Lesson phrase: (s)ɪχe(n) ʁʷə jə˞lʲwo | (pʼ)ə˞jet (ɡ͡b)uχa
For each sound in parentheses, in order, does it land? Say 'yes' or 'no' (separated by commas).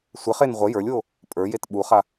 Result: no, yes, yes, no